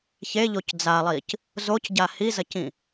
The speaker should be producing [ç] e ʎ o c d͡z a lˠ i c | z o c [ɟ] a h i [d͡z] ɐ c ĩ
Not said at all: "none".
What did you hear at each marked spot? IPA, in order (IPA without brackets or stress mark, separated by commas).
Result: ç, ɟ, z